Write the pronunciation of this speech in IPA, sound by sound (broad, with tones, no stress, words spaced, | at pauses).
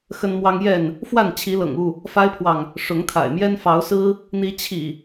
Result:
xə˦nmwɑ˦ŋ jɛ˥˨n | fwa˥˨nt͡ɕʰi˨˦lɤ̰˨˩ŋu˥˨ | fa˦ɪ̯pʰwɑ˨ŋ | ʂʊ˨˦ŋt̪ʰa̰˨˩ɪ̯mjɛ˦n fɑ˨˦ʊ̯sɹ̩˦ | n̪i˨˦t͡ɕʰḭ˨˩